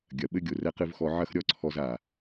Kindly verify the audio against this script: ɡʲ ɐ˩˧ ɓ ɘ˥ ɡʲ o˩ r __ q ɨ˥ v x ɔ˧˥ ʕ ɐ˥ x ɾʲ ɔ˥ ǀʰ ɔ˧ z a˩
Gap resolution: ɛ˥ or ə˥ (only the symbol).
ɛ˥